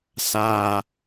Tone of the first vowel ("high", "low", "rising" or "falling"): high